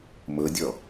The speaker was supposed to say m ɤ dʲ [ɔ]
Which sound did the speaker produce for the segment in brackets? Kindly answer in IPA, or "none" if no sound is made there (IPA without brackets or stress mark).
ɔ